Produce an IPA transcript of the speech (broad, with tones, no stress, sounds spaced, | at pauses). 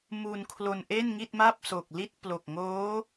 m u˧ n kʰ l o˧ n ʔ e˥˩ n ŋ i˥˩ t̚ m a˥˩ p̚ s o˨˩ k̚ l i˥˩ t̚ p l o˨˩ k̚ ŋ oː˦˥